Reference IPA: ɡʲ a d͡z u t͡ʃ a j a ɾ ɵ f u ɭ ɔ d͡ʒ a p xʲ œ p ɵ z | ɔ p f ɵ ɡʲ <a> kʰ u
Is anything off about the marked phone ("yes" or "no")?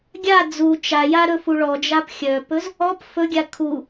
no